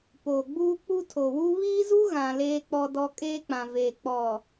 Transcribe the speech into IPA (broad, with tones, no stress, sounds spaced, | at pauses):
p oː˨ ɡ͡b uː˦ k͡p u˦ tʰ o˨ w u˦ β iː˦ z u˦ ɣ ã˨ l eː˦ k͡p ɔ˦ d ɔ˦ kʼ eː˦ k͡p ã˨ v eː˨ k͡p ɔ˨